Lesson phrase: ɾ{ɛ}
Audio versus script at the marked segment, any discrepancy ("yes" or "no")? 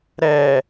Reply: no